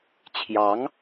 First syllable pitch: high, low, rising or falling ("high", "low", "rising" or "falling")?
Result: rising